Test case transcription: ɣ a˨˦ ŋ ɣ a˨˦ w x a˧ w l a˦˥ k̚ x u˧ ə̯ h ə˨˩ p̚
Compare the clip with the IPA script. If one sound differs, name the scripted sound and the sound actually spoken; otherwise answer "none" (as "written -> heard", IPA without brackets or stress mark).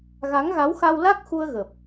h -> ɣ